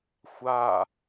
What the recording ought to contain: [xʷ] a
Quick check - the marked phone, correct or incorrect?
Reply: correct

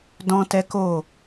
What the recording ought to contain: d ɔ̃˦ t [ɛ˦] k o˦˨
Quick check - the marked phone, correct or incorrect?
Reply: correct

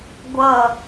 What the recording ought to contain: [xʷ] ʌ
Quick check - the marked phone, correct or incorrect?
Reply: incorrect: ɡʷ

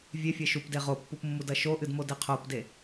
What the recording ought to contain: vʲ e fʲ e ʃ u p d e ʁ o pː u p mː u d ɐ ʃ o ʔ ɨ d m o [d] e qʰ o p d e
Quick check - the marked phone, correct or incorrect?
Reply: correct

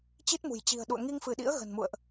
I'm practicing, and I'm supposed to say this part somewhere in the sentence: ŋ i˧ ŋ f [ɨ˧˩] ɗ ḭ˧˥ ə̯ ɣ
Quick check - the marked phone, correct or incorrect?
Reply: correct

